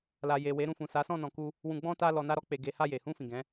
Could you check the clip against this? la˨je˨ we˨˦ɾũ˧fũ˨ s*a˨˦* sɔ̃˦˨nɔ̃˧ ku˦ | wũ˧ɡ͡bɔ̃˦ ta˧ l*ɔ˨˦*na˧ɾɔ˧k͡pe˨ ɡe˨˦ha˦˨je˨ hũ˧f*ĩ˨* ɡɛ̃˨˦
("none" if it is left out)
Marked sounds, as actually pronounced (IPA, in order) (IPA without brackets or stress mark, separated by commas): a˨˦, ɔ˨, ĩ˨